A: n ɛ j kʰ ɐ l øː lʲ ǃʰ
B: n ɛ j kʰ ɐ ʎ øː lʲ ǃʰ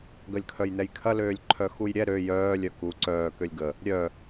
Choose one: A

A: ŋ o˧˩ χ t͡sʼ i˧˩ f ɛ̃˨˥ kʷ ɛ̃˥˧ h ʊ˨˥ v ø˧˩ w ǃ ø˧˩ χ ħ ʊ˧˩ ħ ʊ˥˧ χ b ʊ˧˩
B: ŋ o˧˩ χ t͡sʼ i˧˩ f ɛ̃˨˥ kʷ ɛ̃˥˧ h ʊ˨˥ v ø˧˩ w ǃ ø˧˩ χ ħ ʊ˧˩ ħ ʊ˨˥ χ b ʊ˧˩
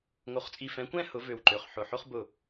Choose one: A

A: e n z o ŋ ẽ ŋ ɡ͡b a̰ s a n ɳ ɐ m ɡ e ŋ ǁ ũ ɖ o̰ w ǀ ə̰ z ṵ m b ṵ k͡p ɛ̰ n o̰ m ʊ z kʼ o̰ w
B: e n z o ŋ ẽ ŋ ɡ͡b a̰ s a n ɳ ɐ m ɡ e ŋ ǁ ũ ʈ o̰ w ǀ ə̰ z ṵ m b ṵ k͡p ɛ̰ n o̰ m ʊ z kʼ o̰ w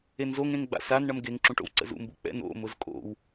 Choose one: B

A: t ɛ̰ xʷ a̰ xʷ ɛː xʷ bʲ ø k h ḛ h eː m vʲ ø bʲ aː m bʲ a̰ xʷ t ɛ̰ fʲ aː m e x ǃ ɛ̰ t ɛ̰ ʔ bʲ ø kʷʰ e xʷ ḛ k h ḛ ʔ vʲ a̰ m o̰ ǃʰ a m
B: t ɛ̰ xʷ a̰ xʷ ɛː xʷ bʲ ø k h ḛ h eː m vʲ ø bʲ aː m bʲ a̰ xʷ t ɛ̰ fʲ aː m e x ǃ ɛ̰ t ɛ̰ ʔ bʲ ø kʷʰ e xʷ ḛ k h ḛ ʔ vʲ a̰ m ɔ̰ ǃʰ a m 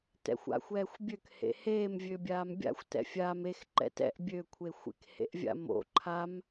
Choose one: A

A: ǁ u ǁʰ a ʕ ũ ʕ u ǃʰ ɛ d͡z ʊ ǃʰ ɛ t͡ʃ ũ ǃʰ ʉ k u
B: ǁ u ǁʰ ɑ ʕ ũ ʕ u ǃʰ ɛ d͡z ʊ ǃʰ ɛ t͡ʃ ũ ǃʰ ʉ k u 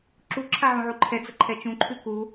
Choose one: A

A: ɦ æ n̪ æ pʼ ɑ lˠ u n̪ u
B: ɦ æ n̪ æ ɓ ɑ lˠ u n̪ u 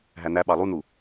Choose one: B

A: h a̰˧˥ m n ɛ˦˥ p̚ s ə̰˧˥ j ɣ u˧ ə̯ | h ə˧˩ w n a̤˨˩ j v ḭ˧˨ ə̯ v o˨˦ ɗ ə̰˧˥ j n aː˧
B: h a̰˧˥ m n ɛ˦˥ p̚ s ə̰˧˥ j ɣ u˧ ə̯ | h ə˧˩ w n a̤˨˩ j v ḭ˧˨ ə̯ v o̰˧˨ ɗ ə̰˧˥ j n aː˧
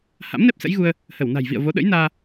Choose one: A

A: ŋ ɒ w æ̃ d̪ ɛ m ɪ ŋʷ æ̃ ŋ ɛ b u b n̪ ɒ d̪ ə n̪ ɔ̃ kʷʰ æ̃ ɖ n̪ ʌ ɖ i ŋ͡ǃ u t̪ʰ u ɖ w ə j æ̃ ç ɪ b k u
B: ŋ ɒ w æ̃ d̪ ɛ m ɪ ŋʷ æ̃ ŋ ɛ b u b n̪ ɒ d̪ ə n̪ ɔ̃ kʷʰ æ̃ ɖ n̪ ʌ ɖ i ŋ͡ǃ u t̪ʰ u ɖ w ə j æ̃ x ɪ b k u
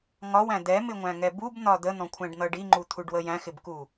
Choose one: B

